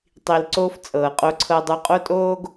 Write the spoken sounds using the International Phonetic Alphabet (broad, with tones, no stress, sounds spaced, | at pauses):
tˤ i˨ l ǀ oː˦ f t͡sʼ ɤː˨ qʼ o˦ ǀʰ ɤ˦ dˤ u˦ qʼ o˦ tʼ oː˦ ɡ